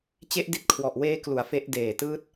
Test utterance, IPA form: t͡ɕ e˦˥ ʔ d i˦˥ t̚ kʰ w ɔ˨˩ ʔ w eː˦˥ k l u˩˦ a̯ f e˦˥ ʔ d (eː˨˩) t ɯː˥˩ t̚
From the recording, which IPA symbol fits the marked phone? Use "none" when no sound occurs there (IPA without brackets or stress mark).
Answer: eː˨˩